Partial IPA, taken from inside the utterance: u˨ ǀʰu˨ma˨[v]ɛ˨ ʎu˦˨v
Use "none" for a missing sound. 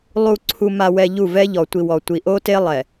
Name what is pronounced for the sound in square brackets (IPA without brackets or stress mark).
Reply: w